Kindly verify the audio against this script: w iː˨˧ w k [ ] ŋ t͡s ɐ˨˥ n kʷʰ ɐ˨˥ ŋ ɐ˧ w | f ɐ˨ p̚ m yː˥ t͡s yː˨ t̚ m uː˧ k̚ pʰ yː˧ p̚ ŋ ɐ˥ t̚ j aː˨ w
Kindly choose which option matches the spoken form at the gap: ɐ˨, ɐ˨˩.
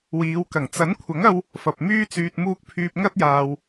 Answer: ɐ˨˩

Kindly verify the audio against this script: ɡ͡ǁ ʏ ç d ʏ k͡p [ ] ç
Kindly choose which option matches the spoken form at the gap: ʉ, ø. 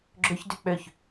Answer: ø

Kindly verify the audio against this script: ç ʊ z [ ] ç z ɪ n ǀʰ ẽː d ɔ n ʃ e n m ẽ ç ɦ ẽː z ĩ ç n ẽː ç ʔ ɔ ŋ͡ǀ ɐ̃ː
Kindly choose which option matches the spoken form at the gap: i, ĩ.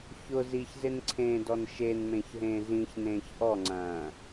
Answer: i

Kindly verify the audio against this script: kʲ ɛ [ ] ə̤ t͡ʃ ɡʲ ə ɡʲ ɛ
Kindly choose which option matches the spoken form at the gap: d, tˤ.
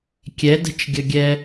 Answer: d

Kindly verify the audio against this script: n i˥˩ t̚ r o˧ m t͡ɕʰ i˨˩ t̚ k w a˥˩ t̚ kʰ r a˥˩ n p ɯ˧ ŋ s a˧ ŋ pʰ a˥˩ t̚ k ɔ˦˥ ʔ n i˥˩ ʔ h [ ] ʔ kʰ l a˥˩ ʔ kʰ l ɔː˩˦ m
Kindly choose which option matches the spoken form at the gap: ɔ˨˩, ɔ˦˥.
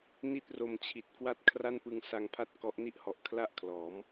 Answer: ɔ˨˩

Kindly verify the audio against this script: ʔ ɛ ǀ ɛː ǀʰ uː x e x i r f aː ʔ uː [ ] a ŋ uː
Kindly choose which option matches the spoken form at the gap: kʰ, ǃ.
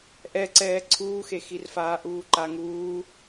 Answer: ǃ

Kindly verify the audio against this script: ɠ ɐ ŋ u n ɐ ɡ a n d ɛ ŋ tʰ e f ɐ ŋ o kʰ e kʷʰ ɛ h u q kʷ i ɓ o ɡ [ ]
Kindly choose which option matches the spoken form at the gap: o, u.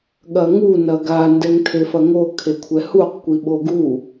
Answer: u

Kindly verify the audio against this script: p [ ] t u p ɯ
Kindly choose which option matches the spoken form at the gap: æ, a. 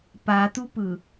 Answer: a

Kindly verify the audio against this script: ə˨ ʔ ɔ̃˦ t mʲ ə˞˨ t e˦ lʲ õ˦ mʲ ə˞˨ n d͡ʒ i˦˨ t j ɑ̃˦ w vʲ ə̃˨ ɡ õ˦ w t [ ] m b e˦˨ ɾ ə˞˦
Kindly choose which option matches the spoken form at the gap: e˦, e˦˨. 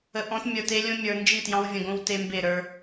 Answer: e˦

